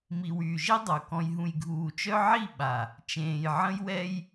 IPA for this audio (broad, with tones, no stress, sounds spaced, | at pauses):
m i˨ w yː˨ ʒ i˦ dˤ o˨ k ɔ̃˨ j ɦ ũ˨ j ɡʱ uː˨ t͡ʃ œ˦ ʕ i˦˨ ɓ a˨ | t͡ʃ ẽː˨ j ʕ ə̃˦ j w ɛ˦ j